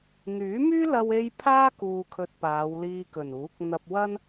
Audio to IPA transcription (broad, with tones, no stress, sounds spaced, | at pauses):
n̪ yː˨˥ m yː˥ l ɐ˧ w e˥ j pʰ aː˥ k uː˨ kʰ ɵ˧ t̚ p aː˨˧ w l iː˧ k ɵ˨˩ n uː˨˥ k̚ n̪ ɐ˧ p̚ w ɐ˥ n